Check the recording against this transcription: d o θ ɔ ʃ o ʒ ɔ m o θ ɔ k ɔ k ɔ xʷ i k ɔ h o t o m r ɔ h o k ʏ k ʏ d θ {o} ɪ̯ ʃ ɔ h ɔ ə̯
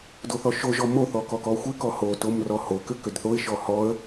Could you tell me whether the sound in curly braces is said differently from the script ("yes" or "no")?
no